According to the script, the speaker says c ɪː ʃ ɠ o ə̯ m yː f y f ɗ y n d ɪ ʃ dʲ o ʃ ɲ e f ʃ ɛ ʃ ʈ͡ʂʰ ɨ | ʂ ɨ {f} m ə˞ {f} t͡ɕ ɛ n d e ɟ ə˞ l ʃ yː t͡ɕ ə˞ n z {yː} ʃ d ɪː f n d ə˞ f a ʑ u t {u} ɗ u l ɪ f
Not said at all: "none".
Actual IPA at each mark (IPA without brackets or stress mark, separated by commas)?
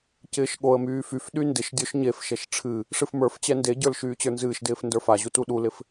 f, f, ɨː, u